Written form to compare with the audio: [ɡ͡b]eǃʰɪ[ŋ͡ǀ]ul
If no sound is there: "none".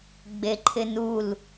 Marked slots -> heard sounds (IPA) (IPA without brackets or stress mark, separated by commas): ɡ͡b, n